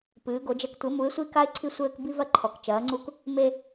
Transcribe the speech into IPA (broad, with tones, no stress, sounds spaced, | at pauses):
p ɨː˩˧ ɡ o˩˧ d͡ʒ ɛ˧ k tʷ ɘ˩˧ m u˩˧ ɪ̯ sʷ i˧ k a˧ ɪ̯ ǀʰ i˧ sʷ ɘː˧ k b i˧ v ɐ˧ ǃʰ ɔ˩˧ k t͡ʃ ɐː˩˧ ŋ͡ǀ u˧ k | m e˧